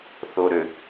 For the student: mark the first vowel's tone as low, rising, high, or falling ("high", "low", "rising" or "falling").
low